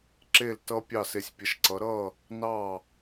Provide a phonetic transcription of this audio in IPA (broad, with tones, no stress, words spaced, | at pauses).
ǁe˥˩l tʌ˥ pʲɑ˥˩se˧sʲpʲə˩˥ʃǀʌ˩˥ ɾʌ˥˩ | nɑ˥˩